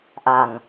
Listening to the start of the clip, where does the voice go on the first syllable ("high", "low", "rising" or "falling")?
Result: low